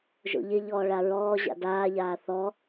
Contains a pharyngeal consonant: no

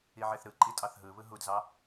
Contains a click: yes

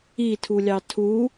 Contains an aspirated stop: yes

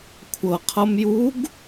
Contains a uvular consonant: yes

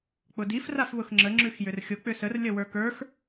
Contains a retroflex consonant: no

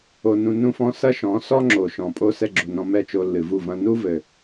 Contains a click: yes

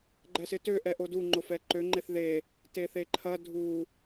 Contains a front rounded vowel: yes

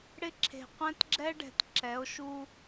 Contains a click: yes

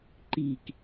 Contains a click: yes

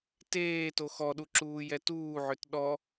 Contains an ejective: no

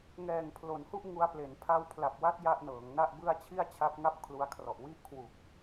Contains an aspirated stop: yes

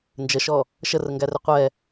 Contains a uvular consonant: yes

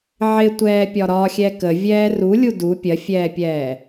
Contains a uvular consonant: no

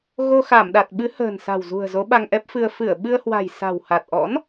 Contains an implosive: yes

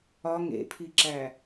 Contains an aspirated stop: yes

